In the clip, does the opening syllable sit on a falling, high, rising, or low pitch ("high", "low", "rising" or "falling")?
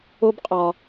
high